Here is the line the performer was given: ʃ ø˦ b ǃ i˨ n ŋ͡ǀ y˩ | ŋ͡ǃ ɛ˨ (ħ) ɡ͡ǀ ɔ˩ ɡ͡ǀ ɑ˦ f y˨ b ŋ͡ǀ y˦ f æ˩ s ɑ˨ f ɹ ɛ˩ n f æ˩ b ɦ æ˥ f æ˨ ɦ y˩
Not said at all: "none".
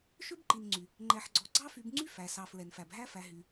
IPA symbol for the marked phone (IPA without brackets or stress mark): ħ